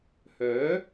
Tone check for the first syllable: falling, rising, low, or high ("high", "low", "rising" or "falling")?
rising